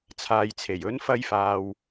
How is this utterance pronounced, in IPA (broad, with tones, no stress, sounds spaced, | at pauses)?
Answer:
t͡sʰ aː˨ j t͡sʰ e˨˩ j ɵ˨˧ n f ɐ˧ j f aː˨ w